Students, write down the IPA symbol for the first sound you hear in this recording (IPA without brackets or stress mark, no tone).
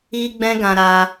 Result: i